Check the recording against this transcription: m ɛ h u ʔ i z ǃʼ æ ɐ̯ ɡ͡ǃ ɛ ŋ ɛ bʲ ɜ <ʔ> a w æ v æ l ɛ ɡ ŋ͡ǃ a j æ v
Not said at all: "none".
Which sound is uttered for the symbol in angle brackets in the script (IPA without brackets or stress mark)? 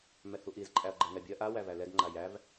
ʔ